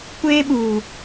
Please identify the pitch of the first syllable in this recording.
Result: high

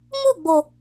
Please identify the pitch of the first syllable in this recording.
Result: falling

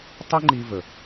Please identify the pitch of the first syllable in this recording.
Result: high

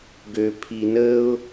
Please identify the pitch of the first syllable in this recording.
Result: low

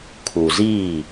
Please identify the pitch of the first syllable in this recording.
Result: low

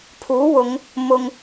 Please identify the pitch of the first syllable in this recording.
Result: rising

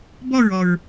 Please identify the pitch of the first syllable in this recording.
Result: falling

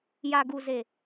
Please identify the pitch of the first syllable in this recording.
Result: low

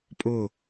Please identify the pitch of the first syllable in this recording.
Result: falling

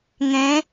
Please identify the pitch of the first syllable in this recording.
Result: rising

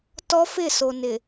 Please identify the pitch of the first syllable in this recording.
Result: high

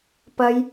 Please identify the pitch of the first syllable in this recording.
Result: high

